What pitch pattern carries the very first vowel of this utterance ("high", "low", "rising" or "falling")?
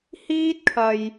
high